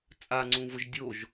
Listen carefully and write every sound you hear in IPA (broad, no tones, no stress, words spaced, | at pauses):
t͡sʼaŋ͡ǀũvʊʒ dʲoʒ